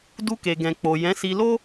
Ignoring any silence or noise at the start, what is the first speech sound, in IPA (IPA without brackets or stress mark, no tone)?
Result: d